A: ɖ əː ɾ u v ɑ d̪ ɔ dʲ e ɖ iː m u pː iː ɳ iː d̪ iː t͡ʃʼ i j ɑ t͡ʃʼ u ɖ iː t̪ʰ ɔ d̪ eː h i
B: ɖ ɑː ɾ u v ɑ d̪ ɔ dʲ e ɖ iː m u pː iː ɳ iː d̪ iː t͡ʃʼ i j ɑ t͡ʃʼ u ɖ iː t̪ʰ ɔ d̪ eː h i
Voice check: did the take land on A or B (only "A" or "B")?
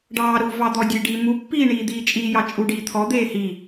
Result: B